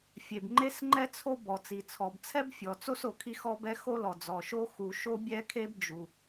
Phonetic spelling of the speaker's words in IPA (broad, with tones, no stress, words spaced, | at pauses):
fʲe˩bŋ͡ǃe˥sŋ͡ǃɛ˥t͡sʰo˥ bɔ˩t͡si˩t͡sʰɔ˩bt͡sʰɛ˥b fʲɔ˩t͡so˥s o˩kʰi˥xɔ˥bɛ˥ xo˥lɔ˩d͡zɔ˩ʃo˥ xu˩ ʃo˥bʲɛ˥kʰe˥b d͡ʒu˩